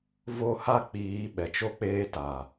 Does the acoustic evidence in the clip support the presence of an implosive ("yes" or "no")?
yes